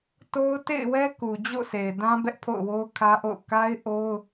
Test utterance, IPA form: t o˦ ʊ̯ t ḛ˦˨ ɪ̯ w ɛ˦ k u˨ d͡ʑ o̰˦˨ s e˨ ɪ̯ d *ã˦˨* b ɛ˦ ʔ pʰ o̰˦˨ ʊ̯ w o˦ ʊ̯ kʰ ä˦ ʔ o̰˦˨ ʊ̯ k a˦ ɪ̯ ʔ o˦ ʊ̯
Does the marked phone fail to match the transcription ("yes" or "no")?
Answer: yes